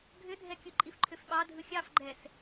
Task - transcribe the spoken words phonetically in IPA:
ɡʱ ʏ dʱ ɛ kʲ ɯ ǃʼ i f ǃʰ ʏ f ɓ ɑ dʱ ɯ xʲ ɑ f ɡ͡ǃ ɛ s

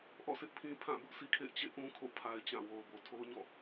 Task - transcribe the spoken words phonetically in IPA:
ʔ ɔ̰˦˨ sʰ ɪ˦ ʔ pʰ ĩ˦ pʰ ã˦˨ b ʊ˦ ʔ s i˦ kʰ ḛ˦˨ ɪ̯ t͡ɕ ḛ˦˨ ʔ ũ˦ kʰ o̰˦˨ pʰ a˦ ɪ̯ t͡ɕ ã˦˨ w o˨ ʊ̯ b o˨ tʰ o˦ ʊ̯ ɲ ɔ̰˦˨

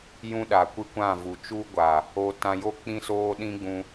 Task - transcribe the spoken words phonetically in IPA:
j ũ˦ ɗ a˨ kʷ ɨ˦ kʷ ã˦˨ v u˨ t͡ʃ u˦ ɡʷ a˨ | o˧ t ã˧ j o˦˨ k͡p ĩ˦ s oː˦ ɗ ĩ˦ ɡ͡b ũ˧

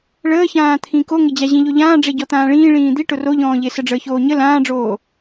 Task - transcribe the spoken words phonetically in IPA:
ɭ əː ç ãː t̪ʰ ĩ k o ŋ ɪ d͡ʑ a ʑ ĩ ʎ o ʎ ãː ɖ͡ʐ e ɟ ɔ t̪ ãː ɭ ĩː ɭ ĩː d̪ i ʈ ʊ r o ʎ ɔ̃ː ʎ e s ə ɖ͡ʐ əː ç oː ɲ ə l ãː ɖ͡ʐ oː

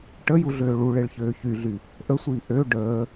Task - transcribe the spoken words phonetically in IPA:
ʈ ə j u ɮ øː ɭ u ɭ e ɭ ç øː ç y ɮ y | ʔ ə sʷ iː ʔ ø ɖ əː

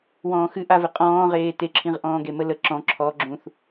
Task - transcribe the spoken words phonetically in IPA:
w ɔ̃ː x ɨ ʔ a v ɨ qʼ ɔ̃ː ʁ eː t e ǁʰ ĩ ʁ ʔ ɔ̃ː ɡ e m ə l ə ǁ ɔ̃ ǁʰ ɔ ɡ͡ǁ ũ θ

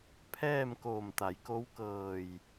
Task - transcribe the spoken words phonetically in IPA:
pʰ ɛː˥˨ m k oː˧˩ m t̪ a˩˧ j k o˧˥ w k ɤː˧˩ j

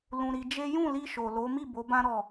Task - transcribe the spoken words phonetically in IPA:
l ũ˧ ɾ i˧ d͡ʒ e˦ j ũ˦˨ l i˧ ʃ o˨ l o˨˦ m i˦˨ b o˨˦ b ã˦ ɾ ɔ˦˨

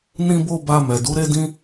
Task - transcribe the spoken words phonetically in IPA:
n ĩ˦ b o˦ b a˧ m ɛ˨ d u˨˦ ɾ e˦ d ĩ˦

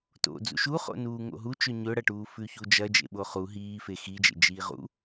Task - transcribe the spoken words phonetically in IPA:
t o̰ d͡z ṵ ʃ u χ o̰ n uː ŋ o̰ ɦ u t͡ʃ ɵ ɲ ɵ ɽ ɐ ʈ uː f ʉ ç u d͡ʒ ɐ d͡ʒ ḛ ɓ o χ u ɦ iː f e x i d͡ʒ ḛ d͡ʒ iː ʁ ṵ

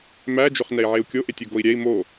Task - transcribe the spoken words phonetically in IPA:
m æ d͡ʒ ɵ χ n ɛ i̯ ʕ e u̯ kʲ o ʔ e tʲ ɵ ɡ o i̯ ɾʲ ɛ i̯ m o

